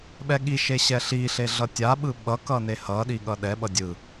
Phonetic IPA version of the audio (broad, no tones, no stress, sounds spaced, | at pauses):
ɓ ɛ ɠ i ʃ e ɕ ɛ ɬ i ɬ e ɮ ʌ tʲ a ɓ ɯ ɓ ʌ k ʌ n e h ʌ ɗ i ɠ ʌ ɗ ɛ ɓ ʌ dʲ ɯ